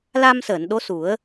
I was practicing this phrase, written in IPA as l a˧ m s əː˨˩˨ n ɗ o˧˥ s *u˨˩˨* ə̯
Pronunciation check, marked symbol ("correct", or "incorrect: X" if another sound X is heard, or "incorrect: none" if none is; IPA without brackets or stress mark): incorrect: u˨˩˦